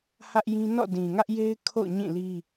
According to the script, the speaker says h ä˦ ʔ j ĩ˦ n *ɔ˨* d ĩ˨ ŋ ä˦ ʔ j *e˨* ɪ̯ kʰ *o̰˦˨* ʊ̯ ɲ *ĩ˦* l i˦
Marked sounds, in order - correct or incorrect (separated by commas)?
incorrect, incorrect, correct, incorrect